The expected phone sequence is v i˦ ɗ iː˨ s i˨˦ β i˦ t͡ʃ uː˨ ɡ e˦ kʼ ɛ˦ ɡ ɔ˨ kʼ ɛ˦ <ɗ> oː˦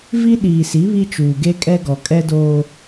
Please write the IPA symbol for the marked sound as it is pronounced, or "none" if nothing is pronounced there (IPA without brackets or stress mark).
d